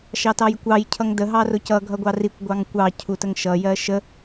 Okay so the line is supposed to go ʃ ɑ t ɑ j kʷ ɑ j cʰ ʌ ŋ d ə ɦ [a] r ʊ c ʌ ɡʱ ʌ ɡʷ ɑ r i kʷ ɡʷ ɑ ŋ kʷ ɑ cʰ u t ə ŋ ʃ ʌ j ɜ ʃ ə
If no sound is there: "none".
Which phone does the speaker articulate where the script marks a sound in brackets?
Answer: ɑ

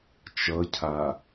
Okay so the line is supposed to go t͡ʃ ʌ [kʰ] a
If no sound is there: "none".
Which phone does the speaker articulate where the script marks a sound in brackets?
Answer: cʰ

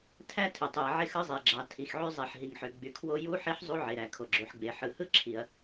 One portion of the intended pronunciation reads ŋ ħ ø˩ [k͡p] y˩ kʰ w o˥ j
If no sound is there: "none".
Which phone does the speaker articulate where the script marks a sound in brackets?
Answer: ɡ͡b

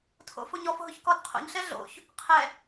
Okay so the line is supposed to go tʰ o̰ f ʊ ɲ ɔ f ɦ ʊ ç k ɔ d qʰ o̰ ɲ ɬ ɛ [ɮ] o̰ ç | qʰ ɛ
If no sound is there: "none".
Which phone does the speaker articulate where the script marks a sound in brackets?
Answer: ɮ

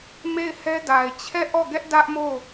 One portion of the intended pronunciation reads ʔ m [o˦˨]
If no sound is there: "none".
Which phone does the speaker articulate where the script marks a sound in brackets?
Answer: o˦˨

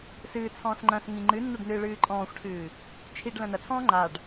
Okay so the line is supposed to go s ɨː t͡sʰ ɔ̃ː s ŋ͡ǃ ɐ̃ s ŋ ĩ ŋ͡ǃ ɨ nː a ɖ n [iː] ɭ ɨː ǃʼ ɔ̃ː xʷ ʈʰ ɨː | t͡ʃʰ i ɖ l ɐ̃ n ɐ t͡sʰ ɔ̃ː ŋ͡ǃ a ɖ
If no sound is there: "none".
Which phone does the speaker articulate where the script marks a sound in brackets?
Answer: ɨː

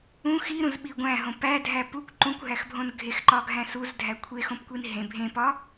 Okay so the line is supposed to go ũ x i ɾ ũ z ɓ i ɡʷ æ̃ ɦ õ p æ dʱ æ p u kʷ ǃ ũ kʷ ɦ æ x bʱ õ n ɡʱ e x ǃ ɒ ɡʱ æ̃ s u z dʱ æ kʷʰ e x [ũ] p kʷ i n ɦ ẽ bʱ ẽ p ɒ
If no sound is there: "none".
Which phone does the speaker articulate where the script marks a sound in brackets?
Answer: õ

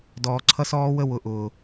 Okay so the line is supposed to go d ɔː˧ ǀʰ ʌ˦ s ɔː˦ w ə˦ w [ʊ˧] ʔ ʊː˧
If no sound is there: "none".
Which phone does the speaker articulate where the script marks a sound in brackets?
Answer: ʊ˧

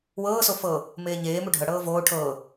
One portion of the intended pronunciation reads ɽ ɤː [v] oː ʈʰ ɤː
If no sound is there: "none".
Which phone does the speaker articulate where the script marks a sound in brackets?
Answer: v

